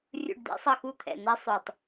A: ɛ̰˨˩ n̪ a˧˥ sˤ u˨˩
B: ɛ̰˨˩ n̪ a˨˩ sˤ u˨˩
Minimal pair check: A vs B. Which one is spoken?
A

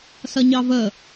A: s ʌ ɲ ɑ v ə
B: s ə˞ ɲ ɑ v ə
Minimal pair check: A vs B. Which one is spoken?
A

